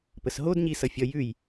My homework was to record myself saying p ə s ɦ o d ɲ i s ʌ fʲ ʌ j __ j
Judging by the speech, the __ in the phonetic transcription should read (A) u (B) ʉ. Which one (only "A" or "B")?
B